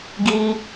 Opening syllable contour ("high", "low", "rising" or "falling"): high